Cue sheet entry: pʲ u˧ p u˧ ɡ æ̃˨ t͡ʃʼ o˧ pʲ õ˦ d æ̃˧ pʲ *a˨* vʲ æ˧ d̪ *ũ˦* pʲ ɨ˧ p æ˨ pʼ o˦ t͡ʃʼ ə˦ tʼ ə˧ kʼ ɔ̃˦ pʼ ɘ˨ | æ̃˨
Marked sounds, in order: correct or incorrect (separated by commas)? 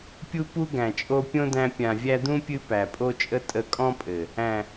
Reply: incorrect, correct